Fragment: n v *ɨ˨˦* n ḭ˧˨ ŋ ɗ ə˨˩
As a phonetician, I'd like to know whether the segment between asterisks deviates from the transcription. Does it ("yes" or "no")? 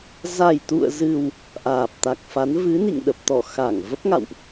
no